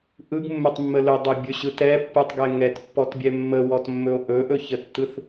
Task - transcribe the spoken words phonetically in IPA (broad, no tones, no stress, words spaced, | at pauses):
ʔɯɡmːɵtˤmːə lɵdˤʏbʲɵɕɯ tɛpːɯtˤɡɛ ŋɛtpːɔtbʲɛ mːəwɔtmːɵo̯ ʔɵʔɵçətːɯθ